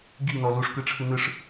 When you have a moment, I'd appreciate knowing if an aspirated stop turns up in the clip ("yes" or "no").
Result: yes